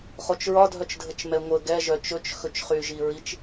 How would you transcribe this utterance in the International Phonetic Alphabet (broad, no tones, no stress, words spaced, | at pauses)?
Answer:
χot͡ʃɹɒ dʱœt͡ʃdʱət͡ʃmɛŋʷə ɡɛ ʒœt͡ʃɵt͡ʃ xɵt͡ʃχyʒiɹit͡ʃ